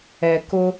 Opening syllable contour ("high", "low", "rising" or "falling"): low